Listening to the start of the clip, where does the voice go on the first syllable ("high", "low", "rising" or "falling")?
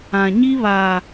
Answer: low